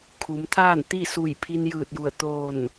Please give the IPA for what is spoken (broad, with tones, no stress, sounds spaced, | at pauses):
kʰ u˩˧ m t̪ʰ aː˥˨ n t̪ i˥˨ s u˧˩ j pʰ i˧ n j ɯː˧˩ t̚ j u˧˩ ə̯ t̪ oː˧˩ n